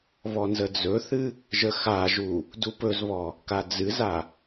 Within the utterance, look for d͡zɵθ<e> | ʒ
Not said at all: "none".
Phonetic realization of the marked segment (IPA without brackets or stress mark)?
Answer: ɨ